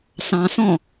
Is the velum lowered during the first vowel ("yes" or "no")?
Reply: yes